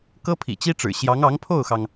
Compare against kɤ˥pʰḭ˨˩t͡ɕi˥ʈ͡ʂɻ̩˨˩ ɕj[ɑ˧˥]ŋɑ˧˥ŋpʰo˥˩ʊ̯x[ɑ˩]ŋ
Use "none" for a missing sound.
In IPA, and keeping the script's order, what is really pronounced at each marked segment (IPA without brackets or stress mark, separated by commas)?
ɑ˧˥, ɑ˩